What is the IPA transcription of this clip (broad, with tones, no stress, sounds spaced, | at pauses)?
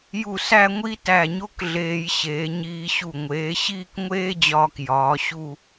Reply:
j u˧˩ s æ˥˧ ŋʷ i˥ t æ˧˩ ɲ o˥ k ɮ eː˧ j ɕ eː˩˧ ɲ iː˧ ɕ u˧˩ ŋʷ eː˩˧ ɕ iː˥˧ k ŋʷ eː˥ d͡ʑ ɒː˧ k j ɒː˩˧ ɕ u˥˧